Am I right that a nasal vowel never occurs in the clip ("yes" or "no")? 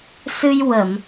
yes